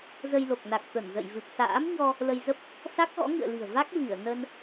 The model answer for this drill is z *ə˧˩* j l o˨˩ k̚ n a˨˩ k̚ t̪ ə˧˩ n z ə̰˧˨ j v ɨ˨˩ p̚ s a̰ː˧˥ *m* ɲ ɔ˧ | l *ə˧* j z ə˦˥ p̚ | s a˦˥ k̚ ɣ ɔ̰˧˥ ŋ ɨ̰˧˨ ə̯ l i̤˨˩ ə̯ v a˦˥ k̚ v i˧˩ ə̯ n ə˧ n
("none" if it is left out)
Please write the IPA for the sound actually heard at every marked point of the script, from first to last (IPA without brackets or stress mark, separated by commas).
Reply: ə˧, m, ə˧